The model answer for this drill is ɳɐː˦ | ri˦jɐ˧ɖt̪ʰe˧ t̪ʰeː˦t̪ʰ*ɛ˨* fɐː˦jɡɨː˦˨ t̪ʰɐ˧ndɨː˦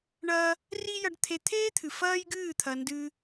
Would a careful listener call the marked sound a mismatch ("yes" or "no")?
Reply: yes